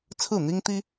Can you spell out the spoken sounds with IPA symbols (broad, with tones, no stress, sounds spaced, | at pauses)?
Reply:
t͡sʰ ɹ̩˥˩ n̪ i˥ ŋ t̪ i˥